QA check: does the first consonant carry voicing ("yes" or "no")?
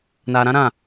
yes